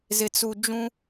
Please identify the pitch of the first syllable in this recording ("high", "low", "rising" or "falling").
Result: low